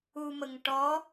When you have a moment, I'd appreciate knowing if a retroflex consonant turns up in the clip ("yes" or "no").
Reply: yes